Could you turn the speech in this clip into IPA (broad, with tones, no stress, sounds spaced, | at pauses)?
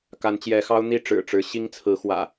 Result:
k a˨˦ n t͡ɕ j ɛ˨˦ x ɑ˦ ʊ̯ n̪ i˥˨ ʈ͡ʂ ɻ̩˨˩ ʈ͡ʂ ɻ̩˨˦ ɕ i˦ ŋ t͡sʰ ɹ̩˨˦ x w ä̰˨˩